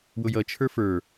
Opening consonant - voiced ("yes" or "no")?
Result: yes